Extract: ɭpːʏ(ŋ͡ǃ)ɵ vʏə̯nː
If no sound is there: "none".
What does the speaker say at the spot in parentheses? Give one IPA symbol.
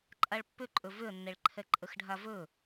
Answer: ǃʼ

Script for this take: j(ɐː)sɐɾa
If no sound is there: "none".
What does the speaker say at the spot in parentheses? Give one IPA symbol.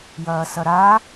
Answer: ɐː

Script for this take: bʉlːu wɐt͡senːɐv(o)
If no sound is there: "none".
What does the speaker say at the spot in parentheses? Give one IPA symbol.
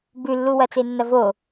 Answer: o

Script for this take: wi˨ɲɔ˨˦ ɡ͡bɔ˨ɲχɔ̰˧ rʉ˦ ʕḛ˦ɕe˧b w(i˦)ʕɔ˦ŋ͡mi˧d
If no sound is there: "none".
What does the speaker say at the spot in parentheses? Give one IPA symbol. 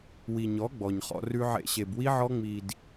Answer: i˦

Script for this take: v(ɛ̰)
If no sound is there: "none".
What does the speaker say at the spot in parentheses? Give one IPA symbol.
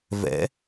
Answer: ɛ̰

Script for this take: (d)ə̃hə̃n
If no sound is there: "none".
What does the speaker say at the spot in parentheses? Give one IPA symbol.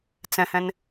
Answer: t͡s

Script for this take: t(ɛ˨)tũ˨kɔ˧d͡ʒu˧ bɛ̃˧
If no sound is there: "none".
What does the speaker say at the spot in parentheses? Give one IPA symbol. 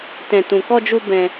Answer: ɛ̃˨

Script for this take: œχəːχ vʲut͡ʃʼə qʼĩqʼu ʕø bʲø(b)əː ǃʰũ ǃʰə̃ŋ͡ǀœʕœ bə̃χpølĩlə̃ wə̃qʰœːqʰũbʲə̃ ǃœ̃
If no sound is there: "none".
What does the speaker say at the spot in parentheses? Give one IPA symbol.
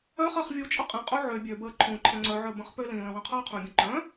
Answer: b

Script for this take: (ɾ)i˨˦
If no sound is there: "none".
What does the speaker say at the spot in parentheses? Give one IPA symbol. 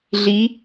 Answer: ɮ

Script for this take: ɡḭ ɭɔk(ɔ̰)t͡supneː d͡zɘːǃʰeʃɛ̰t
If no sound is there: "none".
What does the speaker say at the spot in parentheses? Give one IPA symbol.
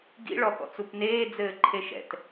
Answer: ɔ̰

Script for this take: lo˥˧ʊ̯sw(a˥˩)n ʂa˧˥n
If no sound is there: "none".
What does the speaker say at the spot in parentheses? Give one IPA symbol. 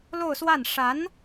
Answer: a˥˩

